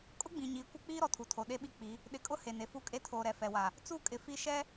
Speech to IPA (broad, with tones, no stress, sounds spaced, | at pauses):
kʼ ʊ˦ ɡ͡b ĩ˨ ɲ iː˨ kʷ ɪ˦ k͡p iː˦ ɾ ɔ˨ tʰ u˨ tʰ o˨ ɗ e˦ ɓ i˦ k͡p i˨˦ | ɗ ɪ˨ kʼ ʊ˦ h e˨ n e˨ f u˦ kʼ e˦ tʰ oː˨ ɾ ɛ˨ f ɛ˨ w a˨ | t͡s u˦˨ kʼ ɪ˨ f i˦ ʃ ɛ˦